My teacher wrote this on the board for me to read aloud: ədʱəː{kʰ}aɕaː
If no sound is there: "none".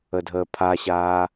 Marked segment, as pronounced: pʰ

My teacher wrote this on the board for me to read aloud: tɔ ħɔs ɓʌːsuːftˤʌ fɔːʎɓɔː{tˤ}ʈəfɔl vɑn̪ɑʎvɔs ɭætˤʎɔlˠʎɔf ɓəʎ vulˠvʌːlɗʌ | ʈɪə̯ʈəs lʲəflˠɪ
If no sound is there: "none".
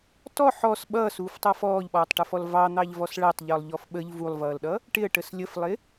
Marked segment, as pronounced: tˤ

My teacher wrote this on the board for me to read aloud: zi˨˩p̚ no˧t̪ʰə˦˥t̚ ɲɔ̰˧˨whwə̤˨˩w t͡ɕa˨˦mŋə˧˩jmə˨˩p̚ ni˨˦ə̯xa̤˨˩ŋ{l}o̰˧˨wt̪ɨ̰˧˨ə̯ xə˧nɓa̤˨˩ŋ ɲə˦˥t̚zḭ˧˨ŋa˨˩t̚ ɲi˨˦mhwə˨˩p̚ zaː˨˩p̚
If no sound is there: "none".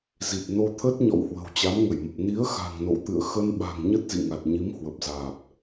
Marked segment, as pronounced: n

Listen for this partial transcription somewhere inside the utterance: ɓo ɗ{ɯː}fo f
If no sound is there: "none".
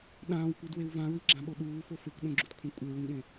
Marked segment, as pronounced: uː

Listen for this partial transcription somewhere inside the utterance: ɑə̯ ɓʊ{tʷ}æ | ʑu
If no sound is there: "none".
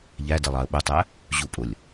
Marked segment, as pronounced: tˤ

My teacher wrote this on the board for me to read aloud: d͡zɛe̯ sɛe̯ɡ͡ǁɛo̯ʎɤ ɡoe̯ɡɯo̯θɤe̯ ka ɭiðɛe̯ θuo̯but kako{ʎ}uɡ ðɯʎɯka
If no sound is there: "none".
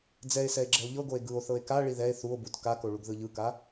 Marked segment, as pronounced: ɭ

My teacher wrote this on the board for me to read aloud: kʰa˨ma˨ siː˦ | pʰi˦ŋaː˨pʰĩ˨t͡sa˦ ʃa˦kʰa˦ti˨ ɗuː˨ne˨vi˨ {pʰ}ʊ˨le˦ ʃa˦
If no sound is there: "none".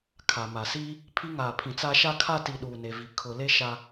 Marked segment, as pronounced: kʰ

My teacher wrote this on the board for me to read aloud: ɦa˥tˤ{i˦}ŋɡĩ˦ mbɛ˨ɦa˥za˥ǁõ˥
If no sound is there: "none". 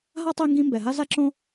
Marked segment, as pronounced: i˦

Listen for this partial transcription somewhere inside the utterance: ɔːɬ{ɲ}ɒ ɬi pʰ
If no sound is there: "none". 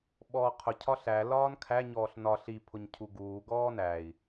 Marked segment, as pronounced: n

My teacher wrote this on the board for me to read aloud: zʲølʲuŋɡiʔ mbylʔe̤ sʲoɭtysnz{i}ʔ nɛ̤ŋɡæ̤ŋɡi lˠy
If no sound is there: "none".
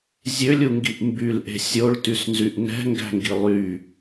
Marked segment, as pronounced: y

